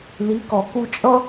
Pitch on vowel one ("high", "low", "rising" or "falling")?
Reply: rising